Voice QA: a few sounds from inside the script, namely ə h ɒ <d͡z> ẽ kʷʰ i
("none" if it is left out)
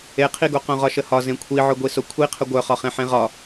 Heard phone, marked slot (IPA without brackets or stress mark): z